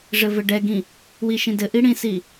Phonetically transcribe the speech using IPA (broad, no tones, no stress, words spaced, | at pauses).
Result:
ʐɘvɘɖɛɡĩ | wiʃĩdɘʔi ɽĩsi